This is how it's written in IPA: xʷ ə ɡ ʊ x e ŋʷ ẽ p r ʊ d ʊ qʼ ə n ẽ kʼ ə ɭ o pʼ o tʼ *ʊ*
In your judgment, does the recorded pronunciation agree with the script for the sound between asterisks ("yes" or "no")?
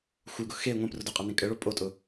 yes